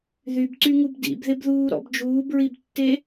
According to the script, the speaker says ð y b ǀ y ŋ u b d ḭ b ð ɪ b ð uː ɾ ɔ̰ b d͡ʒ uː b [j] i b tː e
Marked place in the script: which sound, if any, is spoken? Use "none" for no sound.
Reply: ɹ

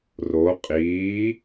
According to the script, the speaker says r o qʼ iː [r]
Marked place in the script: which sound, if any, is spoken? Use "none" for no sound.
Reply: none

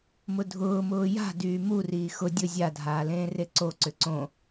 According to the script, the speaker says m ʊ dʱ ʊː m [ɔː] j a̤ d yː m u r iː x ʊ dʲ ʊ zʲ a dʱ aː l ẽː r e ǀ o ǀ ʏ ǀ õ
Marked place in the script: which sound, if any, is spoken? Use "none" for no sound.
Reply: ʊː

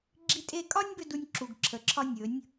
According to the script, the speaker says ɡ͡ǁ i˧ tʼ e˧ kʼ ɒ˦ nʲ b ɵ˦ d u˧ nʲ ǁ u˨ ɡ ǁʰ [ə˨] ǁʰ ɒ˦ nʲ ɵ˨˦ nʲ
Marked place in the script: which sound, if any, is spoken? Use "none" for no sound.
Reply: ə˨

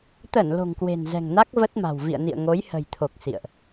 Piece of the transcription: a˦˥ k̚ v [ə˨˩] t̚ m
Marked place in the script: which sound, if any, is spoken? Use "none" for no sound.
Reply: ə˦˥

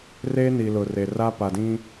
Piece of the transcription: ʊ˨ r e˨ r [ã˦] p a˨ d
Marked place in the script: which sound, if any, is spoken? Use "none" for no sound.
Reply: a˦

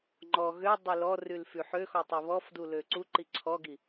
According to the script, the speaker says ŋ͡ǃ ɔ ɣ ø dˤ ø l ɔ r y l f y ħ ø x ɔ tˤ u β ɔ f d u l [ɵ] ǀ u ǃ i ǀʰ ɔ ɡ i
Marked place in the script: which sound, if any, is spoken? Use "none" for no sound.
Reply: ø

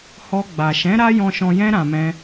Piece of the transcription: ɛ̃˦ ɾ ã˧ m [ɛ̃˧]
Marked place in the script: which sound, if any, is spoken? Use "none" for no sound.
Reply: ɛ̃˦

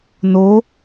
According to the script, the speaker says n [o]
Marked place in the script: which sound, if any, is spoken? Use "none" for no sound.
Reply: o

